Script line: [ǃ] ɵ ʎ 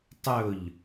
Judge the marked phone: incorrect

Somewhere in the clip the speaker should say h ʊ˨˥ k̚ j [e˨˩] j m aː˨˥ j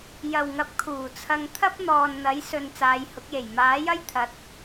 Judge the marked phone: correct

